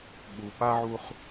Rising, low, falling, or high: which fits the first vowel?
low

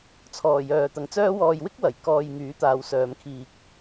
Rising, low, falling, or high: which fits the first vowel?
low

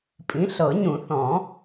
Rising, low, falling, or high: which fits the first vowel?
rising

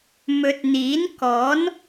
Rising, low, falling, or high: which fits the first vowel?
low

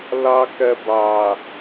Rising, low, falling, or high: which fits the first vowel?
high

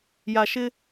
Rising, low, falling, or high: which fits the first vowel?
low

